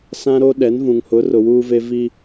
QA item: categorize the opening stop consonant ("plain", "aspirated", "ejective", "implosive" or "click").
implosive